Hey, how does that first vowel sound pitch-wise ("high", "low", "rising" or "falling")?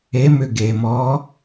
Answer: rising